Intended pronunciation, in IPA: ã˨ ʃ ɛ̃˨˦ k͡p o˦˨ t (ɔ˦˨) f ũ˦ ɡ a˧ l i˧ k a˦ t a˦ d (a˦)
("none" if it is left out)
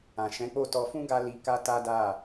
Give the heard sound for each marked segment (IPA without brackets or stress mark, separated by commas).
ɔ˧, a˦˨